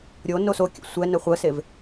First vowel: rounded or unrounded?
rounded